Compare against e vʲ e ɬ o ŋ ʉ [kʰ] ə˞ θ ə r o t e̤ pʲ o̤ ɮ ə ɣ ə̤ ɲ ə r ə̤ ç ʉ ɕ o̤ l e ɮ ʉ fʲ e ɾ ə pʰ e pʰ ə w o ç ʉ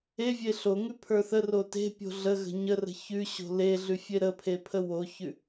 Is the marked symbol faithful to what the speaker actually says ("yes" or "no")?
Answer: no